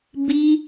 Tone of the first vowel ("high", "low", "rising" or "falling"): high